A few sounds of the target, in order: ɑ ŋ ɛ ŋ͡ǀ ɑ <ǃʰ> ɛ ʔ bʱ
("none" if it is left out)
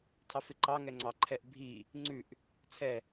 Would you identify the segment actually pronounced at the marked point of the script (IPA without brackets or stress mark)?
ǃʰ